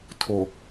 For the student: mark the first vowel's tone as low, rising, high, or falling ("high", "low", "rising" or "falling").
low